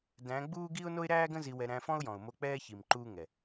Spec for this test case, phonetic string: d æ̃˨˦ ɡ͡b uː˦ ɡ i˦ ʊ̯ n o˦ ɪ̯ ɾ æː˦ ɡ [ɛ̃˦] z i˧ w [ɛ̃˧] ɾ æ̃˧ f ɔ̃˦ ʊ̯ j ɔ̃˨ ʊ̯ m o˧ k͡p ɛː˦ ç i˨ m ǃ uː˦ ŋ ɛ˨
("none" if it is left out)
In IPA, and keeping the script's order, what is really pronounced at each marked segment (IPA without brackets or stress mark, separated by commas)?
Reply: ə̃˦, ɛ˧